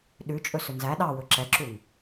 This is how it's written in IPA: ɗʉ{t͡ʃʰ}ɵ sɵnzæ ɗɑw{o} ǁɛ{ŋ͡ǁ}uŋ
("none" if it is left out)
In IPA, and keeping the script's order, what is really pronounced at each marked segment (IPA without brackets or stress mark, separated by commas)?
t͡ʃʼ, ɵ, ǁ